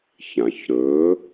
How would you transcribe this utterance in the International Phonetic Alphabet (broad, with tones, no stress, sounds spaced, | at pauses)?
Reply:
ç ã˩ ç ɾ ɵː˩˥